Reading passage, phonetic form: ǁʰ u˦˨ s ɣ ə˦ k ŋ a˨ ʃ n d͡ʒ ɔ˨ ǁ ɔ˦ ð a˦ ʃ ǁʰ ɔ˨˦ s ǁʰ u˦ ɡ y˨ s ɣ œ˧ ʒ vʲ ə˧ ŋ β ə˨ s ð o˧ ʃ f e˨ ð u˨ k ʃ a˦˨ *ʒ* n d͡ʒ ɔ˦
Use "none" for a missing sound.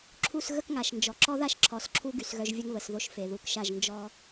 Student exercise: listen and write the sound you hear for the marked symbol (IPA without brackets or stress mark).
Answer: ʒ